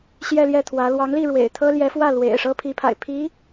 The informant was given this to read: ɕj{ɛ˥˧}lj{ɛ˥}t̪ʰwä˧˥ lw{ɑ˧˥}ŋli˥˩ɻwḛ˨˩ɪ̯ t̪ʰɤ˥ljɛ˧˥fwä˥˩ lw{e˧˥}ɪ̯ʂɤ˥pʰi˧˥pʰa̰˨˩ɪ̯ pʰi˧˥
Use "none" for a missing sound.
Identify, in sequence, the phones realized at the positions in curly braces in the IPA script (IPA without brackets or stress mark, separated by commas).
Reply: ɛ˥˧, ɛ˥˩, ɑ˧˥, ḛ˨˩